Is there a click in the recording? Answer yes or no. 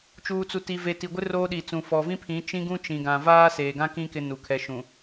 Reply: no